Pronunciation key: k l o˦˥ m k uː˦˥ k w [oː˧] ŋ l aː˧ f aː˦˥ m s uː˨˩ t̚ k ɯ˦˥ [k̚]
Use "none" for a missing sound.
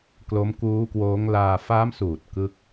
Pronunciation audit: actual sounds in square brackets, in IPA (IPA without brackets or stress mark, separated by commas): oː˦˥, k̚